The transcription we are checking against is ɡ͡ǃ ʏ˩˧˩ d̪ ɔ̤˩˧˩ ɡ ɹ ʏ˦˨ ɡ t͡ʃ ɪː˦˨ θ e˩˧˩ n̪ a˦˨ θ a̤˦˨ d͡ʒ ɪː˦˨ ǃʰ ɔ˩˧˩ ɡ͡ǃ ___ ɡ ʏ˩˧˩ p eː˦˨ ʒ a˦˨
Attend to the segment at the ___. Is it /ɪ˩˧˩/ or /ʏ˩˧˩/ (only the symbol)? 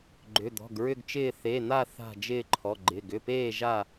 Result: ɪ˩˧˩